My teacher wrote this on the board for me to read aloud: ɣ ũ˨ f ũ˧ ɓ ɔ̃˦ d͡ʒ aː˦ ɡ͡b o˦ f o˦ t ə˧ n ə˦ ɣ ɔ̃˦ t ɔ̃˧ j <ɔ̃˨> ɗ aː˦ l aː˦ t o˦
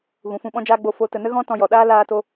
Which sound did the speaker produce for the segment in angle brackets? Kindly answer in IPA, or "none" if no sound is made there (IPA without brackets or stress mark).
ɔ˨